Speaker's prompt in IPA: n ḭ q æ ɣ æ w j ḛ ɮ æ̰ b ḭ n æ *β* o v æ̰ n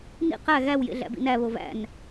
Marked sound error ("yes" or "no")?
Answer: no